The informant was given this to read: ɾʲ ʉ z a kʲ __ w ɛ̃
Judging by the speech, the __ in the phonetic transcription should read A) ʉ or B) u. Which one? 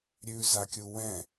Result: B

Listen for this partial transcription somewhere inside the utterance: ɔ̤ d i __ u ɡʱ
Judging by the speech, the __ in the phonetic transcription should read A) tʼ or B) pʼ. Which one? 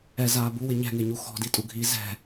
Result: A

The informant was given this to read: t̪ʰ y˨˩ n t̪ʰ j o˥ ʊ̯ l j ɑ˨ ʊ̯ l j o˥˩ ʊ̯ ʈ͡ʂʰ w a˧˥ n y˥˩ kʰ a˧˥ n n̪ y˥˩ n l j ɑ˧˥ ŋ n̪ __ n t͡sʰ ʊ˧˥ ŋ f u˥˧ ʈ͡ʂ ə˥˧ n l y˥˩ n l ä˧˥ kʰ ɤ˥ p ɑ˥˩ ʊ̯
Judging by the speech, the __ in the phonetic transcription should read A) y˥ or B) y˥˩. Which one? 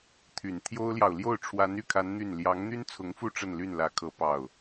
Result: A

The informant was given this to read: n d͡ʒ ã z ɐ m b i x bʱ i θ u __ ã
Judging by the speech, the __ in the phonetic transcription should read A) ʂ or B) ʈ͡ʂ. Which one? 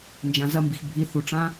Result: B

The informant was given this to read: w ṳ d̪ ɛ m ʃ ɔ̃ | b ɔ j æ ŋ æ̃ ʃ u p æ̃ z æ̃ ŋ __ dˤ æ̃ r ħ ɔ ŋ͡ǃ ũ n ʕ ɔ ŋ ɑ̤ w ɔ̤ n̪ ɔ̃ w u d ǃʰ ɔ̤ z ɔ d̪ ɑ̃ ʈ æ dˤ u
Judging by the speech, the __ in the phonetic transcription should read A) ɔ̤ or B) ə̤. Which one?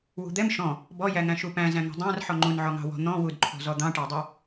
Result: A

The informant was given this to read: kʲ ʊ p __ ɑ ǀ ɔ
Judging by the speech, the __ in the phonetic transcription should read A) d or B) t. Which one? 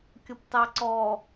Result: B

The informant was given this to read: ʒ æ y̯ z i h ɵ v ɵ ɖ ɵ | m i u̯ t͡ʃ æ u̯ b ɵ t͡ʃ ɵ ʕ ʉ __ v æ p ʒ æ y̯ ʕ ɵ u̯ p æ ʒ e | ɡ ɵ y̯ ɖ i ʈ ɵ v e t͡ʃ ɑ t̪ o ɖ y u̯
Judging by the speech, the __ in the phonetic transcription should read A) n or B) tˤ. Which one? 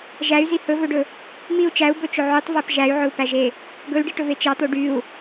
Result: B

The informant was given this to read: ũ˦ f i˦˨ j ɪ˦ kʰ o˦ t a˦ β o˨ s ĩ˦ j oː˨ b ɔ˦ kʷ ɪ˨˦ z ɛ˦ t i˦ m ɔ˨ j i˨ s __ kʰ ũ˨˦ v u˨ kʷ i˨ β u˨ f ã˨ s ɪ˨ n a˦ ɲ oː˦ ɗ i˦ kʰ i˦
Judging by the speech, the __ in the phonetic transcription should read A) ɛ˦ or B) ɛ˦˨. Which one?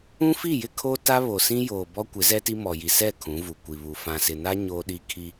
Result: B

